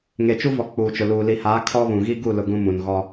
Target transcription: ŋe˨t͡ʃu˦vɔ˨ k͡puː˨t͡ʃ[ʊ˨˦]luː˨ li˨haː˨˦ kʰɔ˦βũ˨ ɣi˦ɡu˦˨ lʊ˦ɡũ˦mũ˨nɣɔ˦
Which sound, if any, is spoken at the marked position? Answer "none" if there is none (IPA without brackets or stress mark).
ʊ˨